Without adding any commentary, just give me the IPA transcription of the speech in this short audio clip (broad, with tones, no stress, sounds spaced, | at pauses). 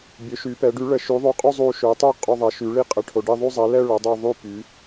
bʲ ø˨˥ ʃ y˨˥ p ɛ˨˥ ɖ y˨˥ ɭ ə˨˥ ʃ y˨˥ ðˤ y˨˥ qʼ u˥˧ zˤ u˥˧ ʃ ø˨˥ tˤ y˥˧ qʼ o˥˧ ðˤ ɛ˨˥ ʃ y˨˥ ɭ i˥˧ qʼ ə˨˥ ʈʰ o˨˥ ɖ i˥˧ ðˤ y˥˧ zˤ ɛ˨˥ l ɛ˥˧ ɭ o˨˥ dˤ ø˥˧ ðˤ y˥˧ p y˨˥